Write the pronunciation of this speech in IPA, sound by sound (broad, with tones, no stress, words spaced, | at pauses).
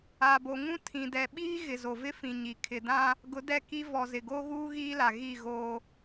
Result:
a˨bo˨ŋũ˦ tʰĩ˨dɛ˨ɓiː˦ɣɪ˨ zo˨vɪ˦fĩ˨ɲi˨ kʰɪ˨dã˦ | ɡʊ˨˦dɛ˦˨ki˦ vɔ˨zɪ˨ɡo˦ɣuː˦ ɣiː˦la˨ ɣi˦˨ɣoː˦